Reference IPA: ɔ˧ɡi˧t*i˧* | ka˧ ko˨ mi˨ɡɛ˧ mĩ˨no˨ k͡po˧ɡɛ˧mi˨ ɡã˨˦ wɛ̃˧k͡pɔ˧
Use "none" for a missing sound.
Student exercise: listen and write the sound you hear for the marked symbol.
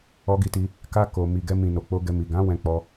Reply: i˧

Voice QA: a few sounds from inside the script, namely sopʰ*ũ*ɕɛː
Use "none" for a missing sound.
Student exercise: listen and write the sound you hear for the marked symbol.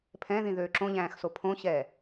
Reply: õ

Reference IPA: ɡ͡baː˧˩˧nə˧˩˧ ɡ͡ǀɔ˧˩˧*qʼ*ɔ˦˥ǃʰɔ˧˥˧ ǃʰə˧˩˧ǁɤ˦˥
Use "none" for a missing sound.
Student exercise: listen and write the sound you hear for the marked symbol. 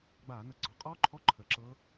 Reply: qʼ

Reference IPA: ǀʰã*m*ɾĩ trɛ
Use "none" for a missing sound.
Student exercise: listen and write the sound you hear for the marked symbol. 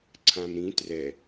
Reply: m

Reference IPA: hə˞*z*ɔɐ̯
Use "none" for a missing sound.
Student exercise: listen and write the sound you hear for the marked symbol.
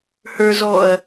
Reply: z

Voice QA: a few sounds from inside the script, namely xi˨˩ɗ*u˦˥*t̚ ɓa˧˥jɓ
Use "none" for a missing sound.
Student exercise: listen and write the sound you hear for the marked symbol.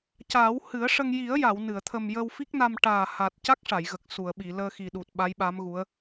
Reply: u˨˩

